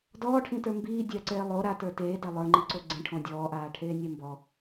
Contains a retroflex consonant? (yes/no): yes